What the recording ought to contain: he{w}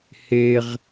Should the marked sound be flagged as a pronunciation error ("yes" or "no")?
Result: yes